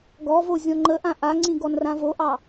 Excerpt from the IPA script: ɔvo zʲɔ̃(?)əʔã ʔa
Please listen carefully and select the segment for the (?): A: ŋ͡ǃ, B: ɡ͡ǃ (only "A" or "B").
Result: A